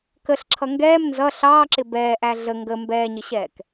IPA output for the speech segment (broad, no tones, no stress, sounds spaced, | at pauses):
k ə ɬ ǁʰ ʌ ŋ ɡ ɛː m n z ʌ ɬ ɑː ǁ ɪ b ɛː ʔ æ ɮ ə ŋ ɡ ə m b ɛː ɲ ɪ ɕ ɛː k